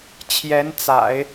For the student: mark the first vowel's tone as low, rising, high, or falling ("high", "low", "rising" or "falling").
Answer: rising